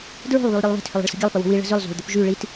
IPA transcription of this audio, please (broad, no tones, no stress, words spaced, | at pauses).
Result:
dɹo̤lˠ βylˠɾʲɛlˠβɛ̤t hʏlˠə̤ɭsə̤ɡʲɐlˠ pəwo̤wi ɭə̤zʏlˠ zo̤ɭd̪ʏpʒy ɭit